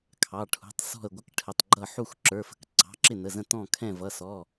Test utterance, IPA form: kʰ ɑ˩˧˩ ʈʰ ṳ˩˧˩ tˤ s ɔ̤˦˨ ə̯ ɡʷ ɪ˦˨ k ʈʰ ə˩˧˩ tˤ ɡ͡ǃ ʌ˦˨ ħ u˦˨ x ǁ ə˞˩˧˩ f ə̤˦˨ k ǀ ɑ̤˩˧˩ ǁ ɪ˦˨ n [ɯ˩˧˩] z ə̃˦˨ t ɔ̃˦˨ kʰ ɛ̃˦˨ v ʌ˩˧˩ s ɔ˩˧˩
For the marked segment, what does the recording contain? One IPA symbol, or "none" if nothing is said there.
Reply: ə˩˧˩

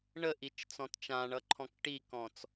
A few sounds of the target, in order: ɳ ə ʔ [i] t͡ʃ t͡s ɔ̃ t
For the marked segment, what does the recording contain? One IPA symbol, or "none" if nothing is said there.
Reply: i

